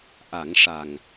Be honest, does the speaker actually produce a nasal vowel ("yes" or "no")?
no